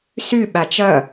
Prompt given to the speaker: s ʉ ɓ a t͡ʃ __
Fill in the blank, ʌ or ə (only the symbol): ʌ